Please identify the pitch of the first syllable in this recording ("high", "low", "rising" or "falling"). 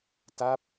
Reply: falling